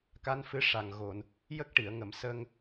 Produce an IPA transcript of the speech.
k a˧˥ n f ɨ˧˥ ʂ a˨˩ ŋ ɣ o˨˩˨ n | j ə˦˥ k̚ ʈ i˨˩˨ ə̯ ŋ ə˨˩˨ m s ə˧ ŋ

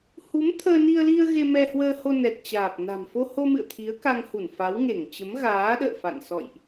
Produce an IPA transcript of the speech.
h u˨˦ m t̪ʰ əː˧ n i˧ ə̯ l i˧ ə̯ ɣ e˧ m ɛ˧ h w əː˧ h o˧ n ɛ˨˩ t̚ t͡ɕ aː˨˩ p̚ n a̤˨˩ m f o˧ h o˧ m ɨ̰˧˨ ə̯ t̪ʰ i˨˦ ə̯ k a˧ ŋ h u˧˩ n f a˨˦ w ŋ e˧˩ ŋ t͡ɕ ə˨˦ m ɣ aː˨˦ ɗ ə̰ː˧˨ f a̰˧˨ n s ɔ̰˧˨ j ʔ

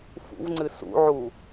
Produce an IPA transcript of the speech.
f ṵ v ŋ͡ǀ ɨ s ṵ ʕ u

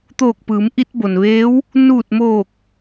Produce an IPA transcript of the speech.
t̪ oː˧˩ k̚ p ɯː˩˧ m ʔ i˧ t̚ b o˩ n ʋ eː˧˥ w | n uː˧˩ t̚ m oː˧˩ k̚

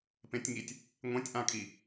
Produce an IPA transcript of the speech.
p ẽ tʲ ŋ i tʲ | ŋʷ ẽ tʲ ʔ ã kʼ i

